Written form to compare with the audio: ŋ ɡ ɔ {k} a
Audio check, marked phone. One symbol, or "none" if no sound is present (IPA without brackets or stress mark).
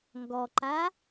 ǃ